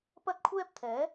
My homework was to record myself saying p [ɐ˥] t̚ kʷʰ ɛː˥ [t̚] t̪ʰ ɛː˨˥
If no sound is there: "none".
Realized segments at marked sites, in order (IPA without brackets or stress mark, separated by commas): ɐ˥, p̚